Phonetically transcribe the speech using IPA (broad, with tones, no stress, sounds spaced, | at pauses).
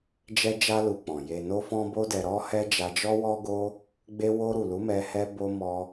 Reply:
d͡ʒ ɛ˧ d͡ʒ a˧ l u˧ k͡p ɔ̃˨ j e˨ n o˧ f ɔ̃˧ b o˦ d ɛ˧ ɾ ɔ˦ h ɛ˧ d͡ʒ a˧ d͡ʒ ɔ˦ w ɔ˦ ɡ o˦ | ɡ͡b e˧ w o˧ ɾ u˨ l u˨˦ m ɛ˧ h ɛ˦ b o˦ m ɔ˦